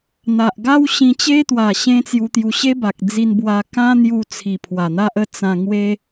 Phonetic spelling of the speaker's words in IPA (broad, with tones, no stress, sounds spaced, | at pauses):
n̪ a˨ ʔ ɡ a˦ w ɕ ĩ˧ t͡ɕ e˦ t̪ w a˨˩ ɕ ẽ˦ t͡s j u˧ t̪ j u˧ ɕ e˦ b a˨ k̚ d͡z i˧ n b w a˧ k ã˦ n̪ j u˧ t͡sʰ i˨˩ pʰ w a˨˩ n̪ a˦ ʔ ə˥˧ t͡s ã˧ ŋ w e˦